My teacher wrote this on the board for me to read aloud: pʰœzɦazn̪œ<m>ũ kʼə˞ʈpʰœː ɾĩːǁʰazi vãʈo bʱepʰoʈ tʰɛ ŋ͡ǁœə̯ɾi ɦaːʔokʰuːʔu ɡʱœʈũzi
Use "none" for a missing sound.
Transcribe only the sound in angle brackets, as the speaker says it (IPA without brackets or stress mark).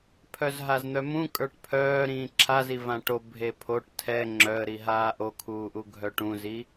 m